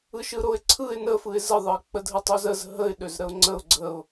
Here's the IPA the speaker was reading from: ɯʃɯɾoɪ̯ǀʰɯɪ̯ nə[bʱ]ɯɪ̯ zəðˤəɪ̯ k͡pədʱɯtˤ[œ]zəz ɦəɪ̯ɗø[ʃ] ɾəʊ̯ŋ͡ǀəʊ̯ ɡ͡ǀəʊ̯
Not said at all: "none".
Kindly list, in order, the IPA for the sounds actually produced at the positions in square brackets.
f, ø, z

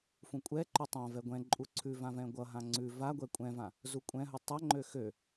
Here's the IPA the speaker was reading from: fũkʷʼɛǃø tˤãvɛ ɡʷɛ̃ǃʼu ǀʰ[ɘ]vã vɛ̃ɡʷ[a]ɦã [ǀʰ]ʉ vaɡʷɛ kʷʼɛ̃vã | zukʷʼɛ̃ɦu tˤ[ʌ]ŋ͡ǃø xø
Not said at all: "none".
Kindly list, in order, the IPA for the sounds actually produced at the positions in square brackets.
ʉ, ʌ, ŋ͡ǀ, ʌ

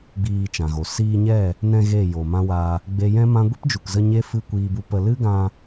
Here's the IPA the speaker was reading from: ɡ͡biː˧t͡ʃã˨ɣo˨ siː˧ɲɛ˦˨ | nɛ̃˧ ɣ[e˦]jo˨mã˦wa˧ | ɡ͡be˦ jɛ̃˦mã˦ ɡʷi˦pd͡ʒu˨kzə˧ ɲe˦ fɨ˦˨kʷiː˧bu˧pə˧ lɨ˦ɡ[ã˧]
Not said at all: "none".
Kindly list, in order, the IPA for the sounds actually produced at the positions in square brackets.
e˦˨, ã˧

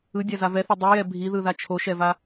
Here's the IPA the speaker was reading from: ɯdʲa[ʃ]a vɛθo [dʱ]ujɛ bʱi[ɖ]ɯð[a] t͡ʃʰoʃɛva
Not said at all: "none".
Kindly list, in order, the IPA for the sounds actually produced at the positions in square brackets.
z, dˤ, ð, a

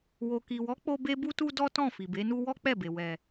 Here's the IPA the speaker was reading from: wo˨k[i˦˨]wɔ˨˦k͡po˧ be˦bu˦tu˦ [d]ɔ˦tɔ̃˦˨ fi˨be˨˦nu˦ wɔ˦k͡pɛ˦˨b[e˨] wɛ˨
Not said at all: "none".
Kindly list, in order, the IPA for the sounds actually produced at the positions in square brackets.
i˨, d, e˨

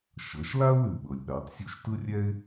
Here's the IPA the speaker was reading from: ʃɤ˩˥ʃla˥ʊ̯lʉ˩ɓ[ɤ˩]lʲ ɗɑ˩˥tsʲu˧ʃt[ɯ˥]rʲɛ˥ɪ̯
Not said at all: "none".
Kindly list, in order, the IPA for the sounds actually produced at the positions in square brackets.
ɤ˩, ɯ˥

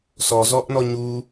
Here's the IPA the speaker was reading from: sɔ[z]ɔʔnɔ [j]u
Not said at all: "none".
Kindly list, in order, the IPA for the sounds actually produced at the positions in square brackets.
z, ɲ

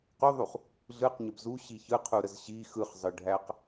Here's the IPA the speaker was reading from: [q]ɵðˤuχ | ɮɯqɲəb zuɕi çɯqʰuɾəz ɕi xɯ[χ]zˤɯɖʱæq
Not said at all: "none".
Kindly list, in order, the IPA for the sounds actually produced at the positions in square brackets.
q, χ

